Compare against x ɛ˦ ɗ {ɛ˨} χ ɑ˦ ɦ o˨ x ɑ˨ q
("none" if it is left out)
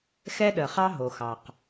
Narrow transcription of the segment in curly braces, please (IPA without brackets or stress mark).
ə˨